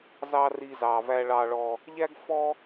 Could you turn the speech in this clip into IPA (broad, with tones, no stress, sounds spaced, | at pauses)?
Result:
z ɑ˧ r i˧ z ɑ˨ v æ˧ ɭ ɑ˧ ɭ ɔ˧ | ʎ æ˦ ɡ f ɔ˦